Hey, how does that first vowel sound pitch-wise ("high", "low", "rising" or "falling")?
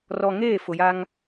low